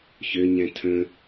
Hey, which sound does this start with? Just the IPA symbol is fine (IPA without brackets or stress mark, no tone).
ç